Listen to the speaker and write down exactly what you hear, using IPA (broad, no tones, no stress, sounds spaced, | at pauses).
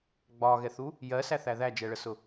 ɡ͡b ɒ ɣ ɛ θ u | j ɜ s æ θ æ ð æ d͡ʒ ɛ ɭ ə s ʊ